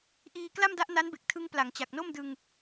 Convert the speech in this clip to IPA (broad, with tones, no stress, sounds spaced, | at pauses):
ʔ iː˧ k l a˥˩ m d a˦˥ ʔ n a˦˥ n b e˨˩ k̚ tʰ ɯ˧ ŋ p l a˩˦ ŋ t͡ɕ a˨˩ k̚ n o˥˩ m d ɯ˧ ŋ